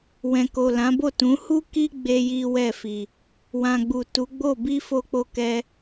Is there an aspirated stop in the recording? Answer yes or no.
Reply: no